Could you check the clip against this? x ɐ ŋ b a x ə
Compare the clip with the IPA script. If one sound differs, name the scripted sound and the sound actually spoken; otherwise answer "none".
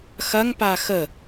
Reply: b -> p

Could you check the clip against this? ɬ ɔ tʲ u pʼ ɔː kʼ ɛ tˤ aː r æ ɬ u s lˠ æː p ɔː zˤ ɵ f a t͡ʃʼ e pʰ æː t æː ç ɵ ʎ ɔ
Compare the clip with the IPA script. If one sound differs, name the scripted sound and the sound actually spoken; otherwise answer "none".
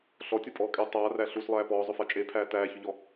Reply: none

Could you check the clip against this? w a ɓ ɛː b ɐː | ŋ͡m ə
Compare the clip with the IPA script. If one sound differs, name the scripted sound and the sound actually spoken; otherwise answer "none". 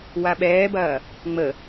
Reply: none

